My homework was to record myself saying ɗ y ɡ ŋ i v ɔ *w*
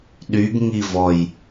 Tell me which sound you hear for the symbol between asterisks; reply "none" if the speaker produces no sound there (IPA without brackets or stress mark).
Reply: j